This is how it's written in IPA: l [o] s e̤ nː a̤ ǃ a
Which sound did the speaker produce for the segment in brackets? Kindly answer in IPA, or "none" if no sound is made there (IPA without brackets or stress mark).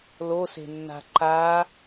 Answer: o